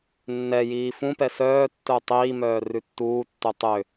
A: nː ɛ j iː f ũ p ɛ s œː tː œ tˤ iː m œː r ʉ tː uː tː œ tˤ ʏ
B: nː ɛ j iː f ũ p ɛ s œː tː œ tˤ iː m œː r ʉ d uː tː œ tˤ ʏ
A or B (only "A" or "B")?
A